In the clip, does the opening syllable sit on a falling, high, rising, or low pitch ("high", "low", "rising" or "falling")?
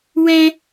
high